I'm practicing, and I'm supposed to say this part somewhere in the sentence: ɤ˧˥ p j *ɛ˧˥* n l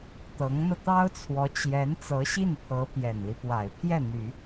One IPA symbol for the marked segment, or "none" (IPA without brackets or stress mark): ɛ˨˩